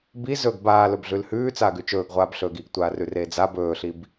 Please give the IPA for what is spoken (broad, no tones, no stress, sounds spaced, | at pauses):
b i z ɵ ɡ b aː l ɵ b ɮ ʉ l h ʉː t͡s aː ɡ ʉ t͡ʃ ɵː ɡ ʁʷ aː b ɬ ɵː ɡ i ɡ tʷ aː r ʉ r eː d͡z a b ɵː ɬ i b